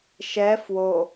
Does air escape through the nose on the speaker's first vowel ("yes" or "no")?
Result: no